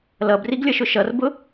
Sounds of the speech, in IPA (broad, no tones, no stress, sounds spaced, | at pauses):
l ʌ b r i ɡ lʲ ʌ ʃ ʊ ʃ ʌ r b ʊ